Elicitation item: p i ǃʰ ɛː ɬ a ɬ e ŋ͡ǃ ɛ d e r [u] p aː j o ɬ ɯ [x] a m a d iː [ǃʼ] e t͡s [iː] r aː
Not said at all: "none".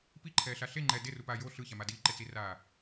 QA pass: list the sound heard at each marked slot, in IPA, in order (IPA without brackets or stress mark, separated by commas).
u, ç, ǃ, i